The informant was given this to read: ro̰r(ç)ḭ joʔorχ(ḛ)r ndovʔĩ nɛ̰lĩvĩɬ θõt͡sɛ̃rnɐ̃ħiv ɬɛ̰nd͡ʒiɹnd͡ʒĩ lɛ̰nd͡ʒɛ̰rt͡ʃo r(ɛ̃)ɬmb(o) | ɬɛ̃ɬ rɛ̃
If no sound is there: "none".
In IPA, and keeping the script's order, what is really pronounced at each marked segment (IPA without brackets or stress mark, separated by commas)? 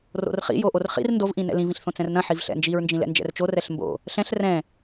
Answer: χ, ḭ, ɛ, o̰